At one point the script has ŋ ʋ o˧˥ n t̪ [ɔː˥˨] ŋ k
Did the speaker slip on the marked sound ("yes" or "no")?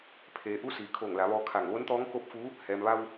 yes